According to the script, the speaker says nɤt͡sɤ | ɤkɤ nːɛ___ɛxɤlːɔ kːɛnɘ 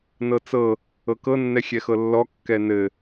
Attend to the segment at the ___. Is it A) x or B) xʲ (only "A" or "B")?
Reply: B